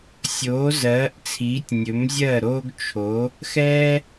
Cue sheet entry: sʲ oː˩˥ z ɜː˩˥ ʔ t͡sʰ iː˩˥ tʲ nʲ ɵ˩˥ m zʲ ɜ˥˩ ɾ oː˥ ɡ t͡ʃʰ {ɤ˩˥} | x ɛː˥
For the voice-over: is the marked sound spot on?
no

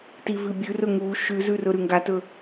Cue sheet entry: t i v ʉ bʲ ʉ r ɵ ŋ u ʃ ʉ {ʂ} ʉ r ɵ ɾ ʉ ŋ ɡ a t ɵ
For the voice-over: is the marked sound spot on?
no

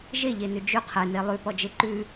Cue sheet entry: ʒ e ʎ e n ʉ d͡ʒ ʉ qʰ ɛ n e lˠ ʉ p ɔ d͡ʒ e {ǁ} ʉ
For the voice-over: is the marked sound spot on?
no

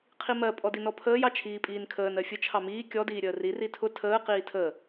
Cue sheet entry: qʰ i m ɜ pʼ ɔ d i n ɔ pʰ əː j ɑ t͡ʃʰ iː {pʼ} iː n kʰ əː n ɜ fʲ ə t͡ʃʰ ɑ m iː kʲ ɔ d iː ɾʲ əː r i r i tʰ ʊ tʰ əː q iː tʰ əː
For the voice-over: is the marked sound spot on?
yes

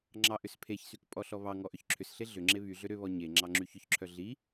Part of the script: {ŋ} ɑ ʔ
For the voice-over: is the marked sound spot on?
no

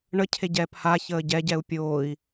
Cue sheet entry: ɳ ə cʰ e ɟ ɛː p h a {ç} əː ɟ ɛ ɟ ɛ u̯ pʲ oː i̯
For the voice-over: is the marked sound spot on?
yes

